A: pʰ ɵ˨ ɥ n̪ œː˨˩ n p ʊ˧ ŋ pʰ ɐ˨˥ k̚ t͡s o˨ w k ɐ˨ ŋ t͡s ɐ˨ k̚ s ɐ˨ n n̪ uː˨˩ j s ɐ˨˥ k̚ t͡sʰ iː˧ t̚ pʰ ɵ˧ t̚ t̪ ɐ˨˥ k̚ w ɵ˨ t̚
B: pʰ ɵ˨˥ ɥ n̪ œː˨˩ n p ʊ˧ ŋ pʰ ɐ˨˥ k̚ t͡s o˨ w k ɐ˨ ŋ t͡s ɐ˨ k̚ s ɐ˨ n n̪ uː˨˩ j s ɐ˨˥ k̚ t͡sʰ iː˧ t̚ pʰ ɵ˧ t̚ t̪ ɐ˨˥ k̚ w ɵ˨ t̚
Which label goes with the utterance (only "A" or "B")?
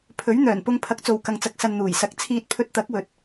B